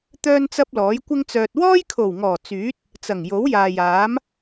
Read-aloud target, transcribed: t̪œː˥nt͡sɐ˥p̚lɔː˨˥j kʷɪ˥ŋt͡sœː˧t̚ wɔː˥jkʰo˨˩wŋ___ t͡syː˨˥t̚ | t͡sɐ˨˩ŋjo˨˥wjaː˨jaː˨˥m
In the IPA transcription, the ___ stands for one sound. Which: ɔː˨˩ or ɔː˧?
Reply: ɔː˨˩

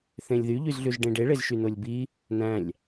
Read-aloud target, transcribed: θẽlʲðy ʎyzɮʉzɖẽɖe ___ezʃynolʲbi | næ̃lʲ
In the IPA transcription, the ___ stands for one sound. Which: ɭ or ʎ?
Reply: ɭ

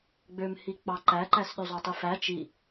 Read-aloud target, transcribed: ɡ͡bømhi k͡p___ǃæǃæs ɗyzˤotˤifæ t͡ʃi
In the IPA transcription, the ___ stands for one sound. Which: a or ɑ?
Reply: ɑ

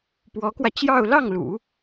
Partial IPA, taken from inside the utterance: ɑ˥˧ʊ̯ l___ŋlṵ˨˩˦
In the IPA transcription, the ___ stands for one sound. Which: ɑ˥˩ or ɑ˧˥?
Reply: ɑ˥˩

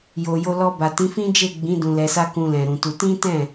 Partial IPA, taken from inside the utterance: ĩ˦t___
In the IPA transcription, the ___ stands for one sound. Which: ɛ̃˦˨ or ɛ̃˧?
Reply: ɛ̃˦˨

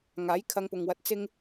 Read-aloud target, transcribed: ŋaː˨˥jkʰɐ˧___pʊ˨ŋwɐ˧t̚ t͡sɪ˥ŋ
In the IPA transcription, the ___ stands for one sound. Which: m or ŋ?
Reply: ŋ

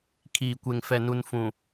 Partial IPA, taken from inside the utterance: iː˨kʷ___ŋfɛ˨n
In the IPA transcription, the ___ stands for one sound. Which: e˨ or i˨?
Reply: e˨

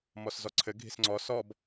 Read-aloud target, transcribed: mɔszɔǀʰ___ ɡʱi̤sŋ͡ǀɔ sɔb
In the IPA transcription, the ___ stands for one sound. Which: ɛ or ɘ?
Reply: ɘ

